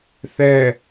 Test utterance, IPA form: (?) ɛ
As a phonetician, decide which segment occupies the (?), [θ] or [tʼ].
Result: θ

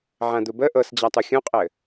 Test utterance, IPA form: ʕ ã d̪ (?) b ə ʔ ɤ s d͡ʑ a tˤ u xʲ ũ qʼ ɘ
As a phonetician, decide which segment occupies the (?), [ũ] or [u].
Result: u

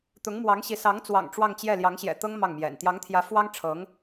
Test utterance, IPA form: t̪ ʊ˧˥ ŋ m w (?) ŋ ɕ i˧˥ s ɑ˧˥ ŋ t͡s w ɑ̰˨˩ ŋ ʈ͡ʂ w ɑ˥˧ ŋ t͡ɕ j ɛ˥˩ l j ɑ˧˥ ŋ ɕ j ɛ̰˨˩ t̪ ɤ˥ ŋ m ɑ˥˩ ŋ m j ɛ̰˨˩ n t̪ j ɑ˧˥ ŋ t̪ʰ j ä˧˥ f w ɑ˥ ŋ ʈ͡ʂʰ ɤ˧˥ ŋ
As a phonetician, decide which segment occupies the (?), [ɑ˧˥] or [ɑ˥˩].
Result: ɑ˧˥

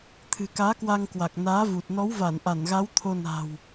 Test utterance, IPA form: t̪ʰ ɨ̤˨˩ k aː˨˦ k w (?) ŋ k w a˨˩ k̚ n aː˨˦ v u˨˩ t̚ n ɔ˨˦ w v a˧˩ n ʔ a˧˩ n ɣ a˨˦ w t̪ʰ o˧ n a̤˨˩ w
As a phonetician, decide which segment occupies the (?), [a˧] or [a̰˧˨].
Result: a˧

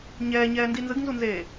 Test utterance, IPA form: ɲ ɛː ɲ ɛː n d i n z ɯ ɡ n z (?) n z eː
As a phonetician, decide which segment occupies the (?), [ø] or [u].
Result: u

